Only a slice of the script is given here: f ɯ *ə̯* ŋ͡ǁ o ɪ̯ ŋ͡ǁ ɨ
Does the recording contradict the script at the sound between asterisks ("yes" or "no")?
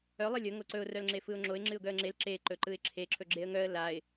yes